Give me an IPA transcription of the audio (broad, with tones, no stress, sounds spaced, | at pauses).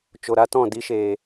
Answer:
t͡ʃ o˨ ɾ a˧ t ɔ̃˦˨ d i˧ ʃ eː˨